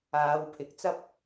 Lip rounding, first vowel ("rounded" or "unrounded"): unrounded